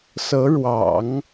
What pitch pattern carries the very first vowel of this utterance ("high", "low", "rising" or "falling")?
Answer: rising